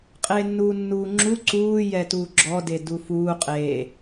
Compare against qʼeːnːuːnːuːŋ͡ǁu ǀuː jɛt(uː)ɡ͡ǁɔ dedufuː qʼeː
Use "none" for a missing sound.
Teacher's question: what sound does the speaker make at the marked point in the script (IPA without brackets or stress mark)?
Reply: uː